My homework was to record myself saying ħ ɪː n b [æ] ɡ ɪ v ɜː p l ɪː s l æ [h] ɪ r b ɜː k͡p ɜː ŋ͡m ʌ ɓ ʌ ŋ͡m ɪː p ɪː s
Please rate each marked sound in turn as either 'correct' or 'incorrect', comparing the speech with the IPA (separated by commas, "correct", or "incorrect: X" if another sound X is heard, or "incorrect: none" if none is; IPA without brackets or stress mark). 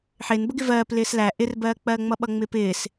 incorrect: ə, incorrect: ʔ